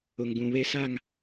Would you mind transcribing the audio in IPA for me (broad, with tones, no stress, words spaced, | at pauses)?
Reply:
ʊ˨ŋɡũ˨ βe˦sa˦˨ŋ